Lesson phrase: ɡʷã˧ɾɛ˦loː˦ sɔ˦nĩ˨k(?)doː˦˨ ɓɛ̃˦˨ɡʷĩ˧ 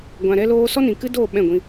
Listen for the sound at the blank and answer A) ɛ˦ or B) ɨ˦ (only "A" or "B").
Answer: B